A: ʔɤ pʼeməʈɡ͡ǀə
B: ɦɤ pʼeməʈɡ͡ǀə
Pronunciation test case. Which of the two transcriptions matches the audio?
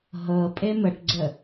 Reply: B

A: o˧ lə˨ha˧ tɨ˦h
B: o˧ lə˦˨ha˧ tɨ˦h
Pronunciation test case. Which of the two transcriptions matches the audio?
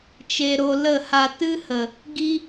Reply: B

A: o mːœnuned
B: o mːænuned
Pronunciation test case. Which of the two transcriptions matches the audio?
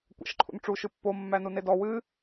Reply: B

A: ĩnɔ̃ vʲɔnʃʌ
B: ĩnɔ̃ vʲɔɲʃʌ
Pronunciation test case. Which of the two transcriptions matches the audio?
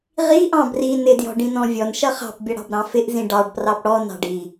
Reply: A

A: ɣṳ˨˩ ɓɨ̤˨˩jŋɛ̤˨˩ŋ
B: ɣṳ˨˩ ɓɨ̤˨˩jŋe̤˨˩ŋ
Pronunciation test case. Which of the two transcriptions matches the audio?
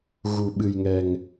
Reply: A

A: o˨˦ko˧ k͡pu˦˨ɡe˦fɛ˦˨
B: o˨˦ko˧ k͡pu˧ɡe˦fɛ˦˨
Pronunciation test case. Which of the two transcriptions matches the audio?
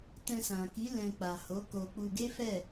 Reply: B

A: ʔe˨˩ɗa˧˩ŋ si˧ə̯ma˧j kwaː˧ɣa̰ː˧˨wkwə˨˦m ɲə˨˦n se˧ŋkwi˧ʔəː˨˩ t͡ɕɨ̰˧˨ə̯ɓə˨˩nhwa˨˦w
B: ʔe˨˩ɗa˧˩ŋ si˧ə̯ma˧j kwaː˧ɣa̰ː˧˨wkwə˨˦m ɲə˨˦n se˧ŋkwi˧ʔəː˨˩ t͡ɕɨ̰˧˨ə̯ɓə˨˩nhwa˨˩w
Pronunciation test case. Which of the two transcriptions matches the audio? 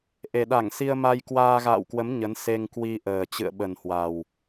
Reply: B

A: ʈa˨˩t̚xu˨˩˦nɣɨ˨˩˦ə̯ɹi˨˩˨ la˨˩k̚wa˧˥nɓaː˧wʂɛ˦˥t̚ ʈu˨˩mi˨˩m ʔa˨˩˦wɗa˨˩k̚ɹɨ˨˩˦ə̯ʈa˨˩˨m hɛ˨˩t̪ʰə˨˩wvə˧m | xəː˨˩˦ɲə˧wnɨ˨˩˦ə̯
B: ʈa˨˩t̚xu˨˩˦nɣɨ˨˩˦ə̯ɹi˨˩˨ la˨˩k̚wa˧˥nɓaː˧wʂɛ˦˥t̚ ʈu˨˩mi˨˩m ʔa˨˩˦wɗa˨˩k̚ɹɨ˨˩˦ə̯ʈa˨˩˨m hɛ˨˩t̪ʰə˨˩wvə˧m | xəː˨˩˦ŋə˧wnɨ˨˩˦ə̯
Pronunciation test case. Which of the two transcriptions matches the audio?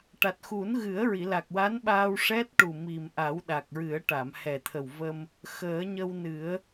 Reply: A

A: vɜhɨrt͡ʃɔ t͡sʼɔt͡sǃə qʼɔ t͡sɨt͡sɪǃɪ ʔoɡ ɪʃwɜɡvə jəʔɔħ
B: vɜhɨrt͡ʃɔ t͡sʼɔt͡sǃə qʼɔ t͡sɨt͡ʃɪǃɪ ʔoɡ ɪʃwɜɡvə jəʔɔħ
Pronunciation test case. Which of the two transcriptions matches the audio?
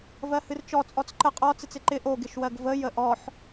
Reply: A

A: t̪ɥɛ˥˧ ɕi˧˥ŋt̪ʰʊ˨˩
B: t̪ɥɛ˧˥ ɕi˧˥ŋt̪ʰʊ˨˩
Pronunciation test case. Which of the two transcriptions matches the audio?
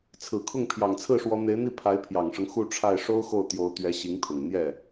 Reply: B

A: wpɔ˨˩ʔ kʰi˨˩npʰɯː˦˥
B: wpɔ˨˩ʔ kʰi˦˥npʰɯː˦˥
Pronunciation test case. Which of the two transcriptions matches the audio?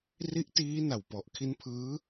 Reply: B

